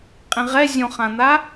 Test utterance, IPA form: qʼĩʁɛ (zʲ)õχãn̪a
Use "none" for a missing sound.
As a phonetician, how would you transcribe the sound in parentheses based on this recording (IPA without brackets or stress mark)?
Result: zʲ